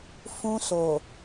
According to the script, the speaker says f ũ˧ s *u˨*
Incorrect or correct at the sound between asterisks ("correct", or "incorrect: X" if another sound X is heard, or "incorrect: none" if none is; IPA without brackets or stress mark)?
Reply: incorrect: o˨